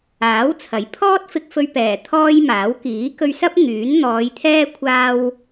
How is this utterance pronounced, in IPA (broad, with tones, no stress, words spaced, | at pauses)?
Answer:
aː˨˥w t͡sʰɐ˨˥jpʰɔː˥t̚fɪ˧k̚fɵ˧ɥ pɛː˨˩ t̪ʰɔː˥jmaː˨˥w kiː˨˥kɵ˧ɥsɐ˥p̚ ŋyː˨˥nn̪ɔː˨˧jt̪ʰɛː˥ kʷʰaː˧w